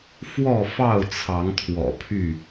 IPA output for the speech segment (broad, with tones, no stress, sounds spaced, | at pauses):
f w ɔ˥˨ f ɑ˥˨ ʊ̯ t͡sʰ ɑ˨˦ ŋ t̪ʰ w ɔ̰˨˩ pʰ y˥˨